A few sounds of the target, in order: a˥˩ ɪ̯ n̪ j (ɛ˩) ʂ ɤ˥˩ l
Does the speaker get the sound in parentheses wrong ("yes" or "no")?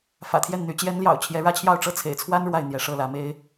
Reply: yes